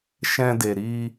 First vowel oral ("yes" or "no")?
no